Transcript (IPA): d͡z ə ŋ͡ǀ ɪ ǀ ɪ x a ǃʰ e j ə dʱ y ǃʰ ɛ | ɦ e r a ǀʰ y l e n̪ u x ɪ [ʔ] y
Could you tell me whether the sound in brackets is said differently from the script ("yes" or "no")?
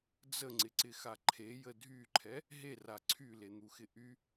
no